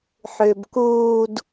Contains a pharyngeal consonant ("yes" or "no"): yes